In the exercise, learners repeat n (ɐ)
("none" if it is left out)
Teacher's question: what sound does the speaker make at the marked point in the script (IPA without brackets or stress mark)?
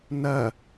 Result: ɐ